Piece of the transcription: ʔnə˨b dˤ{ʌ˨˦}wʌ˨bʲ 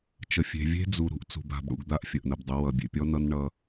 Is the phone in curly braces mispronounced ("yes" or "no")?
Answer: yes